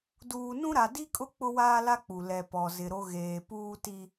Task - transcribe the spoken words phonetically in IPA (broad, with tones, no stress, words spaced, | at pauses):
duː˨nũ˦ɾa˨ di˦kʼʊ˦ k͡pʊ˦waː˦la˦k͡pu˨ lɛ˨pɔ˨zɪ˨ɾo˦ ɣeː˨puː˦ti˦